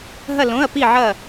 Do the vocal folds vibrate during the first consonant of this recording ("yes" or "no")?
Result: yes